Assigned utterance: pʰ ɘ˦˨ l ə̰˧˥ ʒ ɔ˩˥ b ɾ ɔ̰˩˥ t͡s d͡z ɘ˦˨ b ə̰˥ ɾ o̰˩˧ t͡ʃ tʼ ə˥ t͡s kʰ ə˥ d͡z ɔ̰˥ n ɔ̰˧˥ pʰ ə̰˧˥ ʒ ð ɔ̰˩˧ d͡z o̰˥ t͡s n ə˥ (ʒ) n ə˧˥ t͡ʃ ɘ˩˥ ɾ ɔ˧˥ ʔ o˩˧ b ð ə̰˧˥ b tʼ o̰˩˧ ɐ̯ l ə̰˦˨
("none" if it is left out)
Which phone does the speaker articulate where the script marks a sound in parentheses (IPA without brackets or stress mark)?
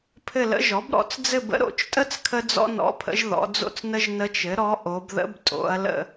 ʒ